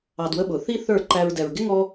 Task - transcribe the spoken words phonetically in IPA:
ɑ˧ d w ə˦ ɓ ʊ˨ θ i˦ θ ə˞˦˨ ǃ æ˧ ɹ d ɛ˨ ɹ ɡ ɪ˦ ŋ ɔ˦

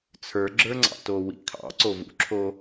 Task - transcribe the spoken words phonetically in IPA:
t͡sʰ ə˞ ɡ͡ǁ ə˞ ŋ͡ǀ ɑ̰ t o w ḭ kʰ ɑ̰ ǀ o v ṵ ǁʰ o

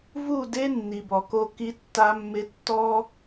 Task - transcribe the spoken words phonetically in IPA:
v u˦˨ d e˦ nː i˨ b ɔ˨ k o˦ k i˦ tː a˦ mː ɪ˦ tː ɔ˦

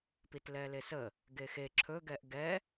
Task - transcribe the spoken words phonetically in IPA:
p i t l ɛ l e s ə | ɡ e x e ǁʰ ɵ ɡ ɛ ʔ ɡ ɛ

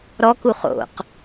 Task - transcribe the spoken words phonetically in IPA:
ɾ ɔ k u χ o̰ q

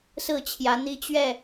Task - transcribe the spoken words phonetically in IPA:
s ɹ̩˥˨ t͡ɕʰ j ä˨˦ n̪ i˦ t͡ɕ ɥ ɛ˥˨

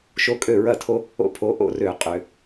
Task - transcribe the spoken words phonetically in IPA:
ʃ o˦ kʼ ø˥˨ ɹ ɐ˥˨ tʰ o˦ | o̰˦ pʰ o˨˦ ʔ o̰˥˨ r ø˧˩˧ qʼ ø˧˩˧

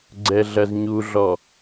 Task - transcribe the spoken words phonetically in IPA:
ɡ͡ǀ ɛ ɮ ɐ z ɲ u ɮ ɔ

